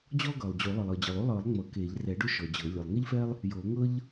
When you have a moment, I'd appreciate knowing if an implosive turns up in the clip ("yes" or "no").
no